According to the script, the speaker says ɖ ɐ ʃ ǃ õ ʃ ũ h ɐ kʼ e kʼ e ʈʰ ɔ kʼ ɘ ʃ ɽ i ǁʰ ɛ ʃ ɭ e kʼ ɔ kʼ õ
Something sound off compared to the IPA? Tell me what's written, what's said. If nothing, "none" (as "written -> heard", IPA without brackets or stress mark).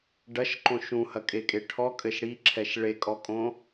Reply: none